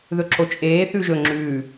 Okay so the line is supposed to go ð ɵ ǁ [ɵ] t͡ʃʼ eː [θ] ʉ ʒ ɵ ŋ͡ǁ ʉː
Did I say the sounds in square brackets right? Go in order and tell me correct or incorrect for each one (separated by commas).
incorrect, correct